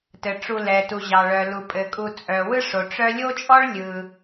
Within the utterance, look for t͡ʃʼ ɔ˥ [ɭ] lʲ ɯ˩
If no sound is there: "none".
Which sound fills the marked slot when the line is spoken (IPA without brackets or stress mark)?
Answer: ɭ